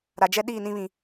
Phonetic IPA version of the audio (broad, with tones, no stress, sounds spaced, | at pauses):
ɾ a˨ d͡ʒ ɛ˦ ɗ iː˦˨ n ĩ˦ β ĩ˨